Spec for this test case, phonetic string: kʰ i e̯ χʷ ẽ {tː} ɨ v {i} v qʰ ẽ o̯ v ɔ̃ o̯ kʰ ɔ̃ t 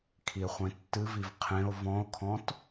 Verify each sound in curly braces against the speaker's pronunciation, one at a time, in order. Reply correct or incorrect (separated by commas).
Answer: correct, correct